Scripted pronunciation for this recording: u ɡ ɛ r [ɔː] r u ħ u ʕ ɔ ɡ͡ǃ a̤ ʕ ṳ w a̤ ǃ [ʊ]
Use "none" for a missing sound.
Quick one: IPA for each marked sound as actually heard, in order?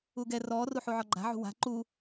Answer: ɔː, u

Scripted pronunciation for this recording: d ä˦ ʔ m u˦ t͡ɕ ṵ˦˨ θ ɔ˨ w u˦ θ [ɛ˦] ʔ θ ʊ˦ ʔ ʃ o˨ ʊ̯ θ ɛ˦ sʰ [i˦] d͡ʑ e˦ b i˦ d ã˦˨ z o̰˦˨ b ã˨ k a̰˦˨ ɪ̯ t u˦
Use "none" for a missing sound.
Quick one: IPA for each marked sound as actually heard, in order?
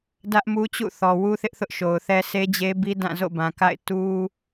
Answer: ɪ˦, e˦

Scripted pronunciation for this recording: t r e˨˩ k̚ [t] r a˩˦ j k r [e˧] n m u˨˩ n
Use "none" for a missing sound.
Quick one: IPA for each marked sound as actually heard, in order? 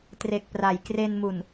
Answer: p, e˧

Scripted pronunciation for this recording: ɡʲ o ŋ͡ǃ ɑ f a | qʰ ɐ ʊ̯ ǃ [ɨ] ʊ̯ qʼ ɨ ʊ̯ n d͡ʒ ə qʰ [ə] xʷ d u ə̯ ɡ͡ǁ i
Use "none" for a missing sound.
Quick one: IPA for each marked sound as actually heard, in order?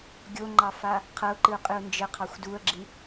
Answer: ɨ, ɑ

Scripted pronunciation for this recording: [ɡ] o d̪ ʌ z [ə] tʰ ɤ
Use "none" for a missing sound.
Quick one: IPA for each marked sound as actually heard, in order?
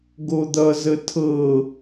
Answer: ɡ, ə

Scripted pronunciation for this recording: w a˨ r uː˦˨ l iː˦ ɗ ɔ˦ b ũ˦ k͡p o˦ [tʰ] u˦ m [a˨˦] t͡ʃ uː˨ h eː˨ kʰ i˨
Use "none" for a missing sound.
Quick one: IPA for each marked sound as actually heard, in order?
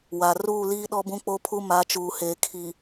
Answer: pʰ, a˨˦

